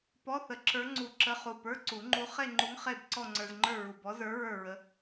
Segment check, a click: present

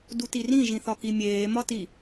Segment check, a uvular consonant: absent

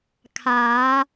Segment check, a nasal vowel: absent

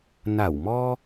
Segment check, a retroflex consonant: absent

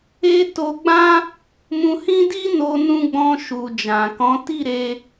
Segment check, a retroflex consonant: absent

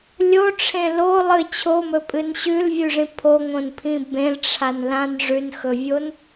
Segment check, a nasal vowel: present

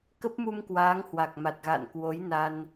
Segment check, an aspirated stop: absent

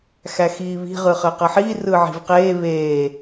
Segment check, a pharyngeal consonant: present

